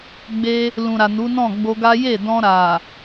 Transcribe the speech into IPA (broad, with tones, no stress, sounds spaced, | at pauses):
ɡ͡b e˧ | l ũ˨ ɾ a˨ n u˨˦ n ɔ̃˦˨ ɡ͡b o˧ ɡ a˦ j e˦˨ d ɔ̃˧ ɾ a˨